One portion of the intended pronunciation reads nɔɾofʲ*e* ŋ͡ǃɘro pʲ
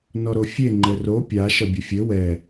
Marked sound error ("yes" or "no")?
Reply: no